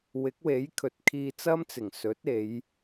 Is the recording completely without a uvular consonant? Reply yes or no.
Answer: yes